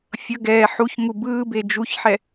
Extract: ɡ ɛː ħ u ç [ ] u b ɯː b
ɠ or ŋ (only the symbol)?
ŋ